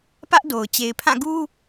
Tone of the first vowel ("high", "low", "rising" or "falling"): high